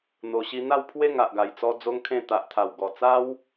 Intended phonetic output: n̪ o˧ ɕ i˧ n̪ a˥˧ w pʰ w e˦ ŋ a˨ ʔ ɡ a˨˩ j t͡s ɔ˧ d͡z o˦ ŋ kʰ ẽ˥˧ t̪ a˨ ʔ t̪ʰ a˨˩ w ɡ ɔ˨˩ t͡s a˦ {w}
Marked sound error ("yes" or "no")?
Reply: no